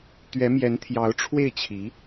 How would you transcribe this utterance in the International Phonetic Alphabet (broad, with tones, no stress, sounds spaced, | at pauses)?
t̪ ɥ ɛ˧˥ m j ɛ˧˥ n t̪ʰ j ɑ˧˥ ʊ̯ ʈ͡ʂʰ w e˥˩ ɪ̯ t͡ɕʰ i˧˥